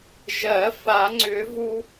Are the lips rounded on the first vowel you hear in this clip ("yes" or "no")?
no